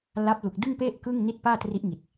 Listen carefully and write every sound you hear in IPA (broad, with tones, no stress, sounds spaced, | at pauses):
l a˦˥ p̚ l u˨˩ k̚ d ɯ˥˩ ŋ p e˥˩ ʔ k ɯ˥˩ ŋ n i˥˩ t̚ p aː˥˩ t r i˦˥ ʔ ŋ i˨˩ t̚